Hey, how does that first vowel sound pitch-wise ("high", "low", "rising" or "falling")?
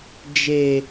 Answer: low